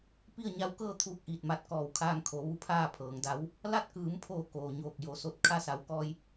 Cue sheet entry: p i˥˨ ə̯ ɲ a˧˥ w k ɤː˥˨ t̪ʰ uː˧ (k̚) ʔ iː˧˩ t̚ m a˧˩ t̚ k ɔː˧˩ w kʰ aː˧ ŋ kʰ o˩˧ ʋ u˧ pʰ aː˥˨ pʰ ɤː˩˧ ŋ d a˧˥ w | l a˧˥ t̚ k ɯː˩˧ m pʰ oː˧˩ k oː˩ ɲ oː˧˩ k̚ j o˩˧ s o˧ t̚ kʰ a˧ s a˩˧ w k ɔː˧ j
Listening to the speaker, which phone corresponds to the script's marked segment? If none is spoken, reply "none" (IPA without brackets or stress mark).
k̚